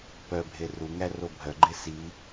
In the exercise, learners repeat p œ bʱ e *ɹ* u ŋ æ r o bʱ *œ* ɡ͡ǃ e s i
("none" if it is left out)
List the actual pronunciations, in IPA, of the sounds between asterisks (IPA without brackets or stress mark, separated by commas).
r, œ